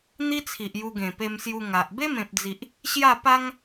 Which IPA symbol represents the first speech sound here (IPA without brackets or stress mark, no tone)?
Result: n̪